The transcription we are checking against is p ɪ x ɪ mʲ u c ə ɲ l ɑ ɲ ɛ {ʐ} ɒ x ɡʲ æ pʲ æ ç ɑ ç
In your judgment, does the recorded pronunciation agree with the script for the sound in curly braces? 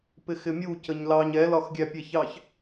no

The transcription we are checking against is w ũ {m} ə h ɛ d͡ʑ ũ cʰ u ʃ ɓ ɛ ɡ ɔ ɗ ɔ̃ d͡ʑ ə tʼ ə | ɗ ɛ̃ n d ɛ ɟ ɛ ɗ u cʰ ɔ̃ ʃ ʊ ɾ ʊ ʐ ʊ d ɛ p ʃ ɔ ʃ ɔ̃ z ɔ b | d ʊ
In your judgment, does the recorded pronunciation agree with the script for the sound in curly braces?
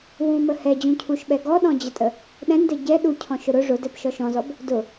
yes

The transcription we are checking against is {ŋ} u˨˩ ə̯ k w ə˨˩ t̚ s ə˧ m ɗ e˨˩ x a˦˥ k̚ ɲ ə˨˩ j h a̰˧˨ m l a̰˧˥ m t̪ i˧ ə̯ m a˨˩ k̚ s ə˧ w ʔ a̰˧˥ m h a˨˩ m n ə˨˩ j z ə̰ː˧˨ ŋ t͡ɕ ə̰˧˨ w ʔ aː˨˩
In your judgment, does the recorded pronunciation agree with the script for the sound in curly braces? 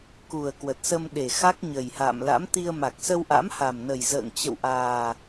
no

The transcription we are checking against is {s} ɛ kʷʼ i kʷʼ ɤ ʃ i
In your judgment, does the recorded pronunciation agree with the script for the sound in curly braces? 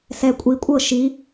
yes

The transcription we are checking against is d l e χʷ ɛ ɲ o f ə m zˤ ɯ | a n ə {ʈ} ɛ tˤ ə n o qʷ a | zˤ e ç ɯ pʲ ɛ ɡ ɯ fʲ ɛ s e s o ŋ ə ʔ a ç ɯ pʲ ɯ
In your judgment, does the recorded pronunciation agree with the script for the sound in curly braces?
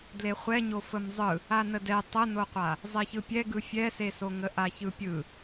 no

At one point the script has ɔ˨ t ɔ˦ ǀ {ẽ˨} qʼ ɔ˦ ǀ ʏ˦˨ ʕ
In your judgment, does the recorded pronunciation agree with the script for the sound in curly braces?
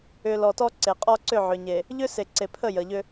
no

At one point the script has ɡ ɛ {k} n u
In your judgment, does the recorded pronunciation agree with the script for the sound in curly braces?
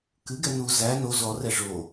no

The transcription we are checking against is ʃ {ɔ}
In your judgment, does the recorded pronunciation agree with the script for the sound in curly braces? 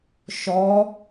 yes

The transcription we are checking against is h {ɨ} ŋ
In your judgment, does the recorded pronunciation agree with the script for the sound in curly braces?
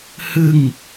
yes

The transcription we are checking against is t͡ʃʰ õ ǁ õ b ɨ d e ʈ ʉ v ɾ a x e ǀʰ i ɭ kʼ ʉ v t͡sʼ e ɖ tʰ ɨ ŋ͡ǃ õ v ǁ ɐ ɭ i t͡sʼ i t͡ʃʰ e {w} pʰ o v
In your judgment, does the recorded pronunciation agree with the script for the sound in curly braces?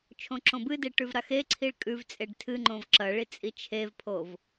no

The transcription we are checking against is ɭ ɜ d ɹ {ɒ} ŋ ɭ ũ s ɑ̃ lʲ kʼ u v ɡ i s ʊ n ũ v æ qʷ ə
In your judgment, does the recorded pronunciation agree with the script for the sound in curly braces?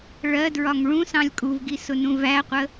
yes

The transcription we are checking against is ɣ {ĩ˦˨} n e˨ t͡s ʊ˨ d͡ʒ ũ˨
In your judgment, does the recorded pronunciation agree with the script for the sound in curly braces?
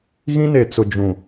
no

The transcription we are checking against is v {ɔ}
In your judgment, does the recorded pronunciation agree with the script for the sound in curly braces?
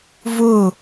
no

